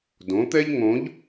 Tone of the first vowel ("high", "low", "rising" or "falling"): rising